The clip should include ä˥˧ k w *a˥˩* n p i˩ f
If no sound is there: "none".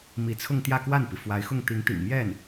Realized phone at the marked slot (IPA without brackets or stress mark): a˥˩